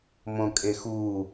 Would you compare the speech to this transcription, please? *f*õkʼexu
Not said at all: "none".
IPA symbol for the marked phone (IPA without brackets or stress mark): m